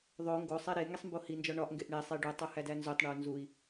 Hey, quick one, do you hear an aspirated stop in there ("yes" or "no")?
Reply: no